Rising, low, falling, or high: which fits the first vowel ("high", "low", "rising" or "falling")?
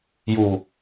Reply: low